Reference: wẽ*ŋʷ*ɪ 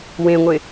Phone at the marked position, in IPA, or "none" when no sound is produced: ŋʷ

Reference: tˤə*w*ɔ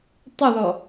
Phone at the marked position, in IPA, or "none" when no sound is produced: ð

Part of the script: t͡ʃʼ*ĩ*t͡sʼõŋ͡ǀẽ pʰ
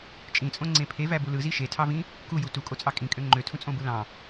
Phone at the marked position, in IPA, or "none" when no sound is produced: ĩ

